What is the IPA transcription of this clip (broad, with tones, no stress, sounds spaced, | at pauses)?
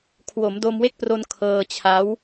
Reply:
kʰ w o˩˦ m d o˧ m w e˦˥ k̚ p r o˧ n kʰ ɤː˧ t͡ɕʰ a˦˥ w